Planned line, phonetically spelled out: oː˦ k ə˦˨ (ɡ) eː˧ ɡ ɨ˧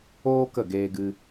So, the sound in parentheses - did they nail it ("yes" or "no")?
yes